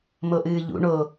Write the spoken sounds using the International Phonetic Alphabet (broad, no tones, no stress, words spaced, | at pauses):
moʔɨːʎṵ ɳo